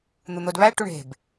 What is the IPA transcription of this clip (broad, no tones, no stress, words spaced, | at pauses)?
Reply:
n̪un̪odβæ ʈuɳe̤b